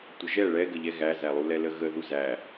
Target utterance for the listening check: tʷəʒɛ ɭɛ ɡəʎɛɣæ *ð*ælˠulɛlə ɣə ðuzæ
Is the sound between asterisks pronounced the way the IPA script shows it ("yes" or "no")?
no